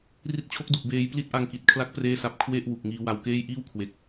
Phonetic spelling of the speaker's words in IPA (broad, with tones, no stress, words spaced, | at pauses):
ri˦˥t̚t͡ɕʰo˦˥k̚du˨˩k̚ beː˧j pli˦˥t̚ʔa˧ŋki˨˩t̚kʰla˦˥k̚ preː˥˩sa˦˥p̚ kʰwe˥˩ʔ wu˨˩k̚ŋiː˧wa˧wkeː˥˩j ʔiː˥˩wkʰwe˨˩k̚